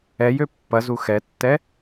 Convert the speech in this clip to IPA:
ɛjø pːɐzu xɛtːɛ

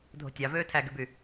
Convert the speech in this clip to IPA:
dʱo̤tʲɑvøː tʰæɡyby

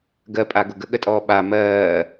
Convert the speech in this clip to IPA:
ɡɜpʼaɡʊ ɡəɠətʼɔː ɓa mɜː

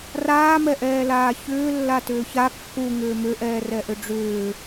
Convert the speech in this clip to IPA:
raːmɛʔɛːlaː çʏː lːatʏːça kːu ŋʏːmʏʔɛː rɛʔʏɖ͡ʐʏː

